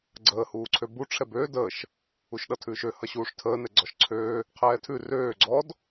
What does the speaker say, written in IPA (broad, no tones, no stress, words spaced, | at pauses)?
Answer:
ɡ͡ǀəː huːǀʰøbu ʈ͡ʂʰɛbøː dəʃ | uʃɗʌtʰʉːʃø hʌɕuːʂtʰəː nɛɡ͡ǀɔʃǀʰøː | qʰɛːtʰʉ røː ɡ͡ǀɔd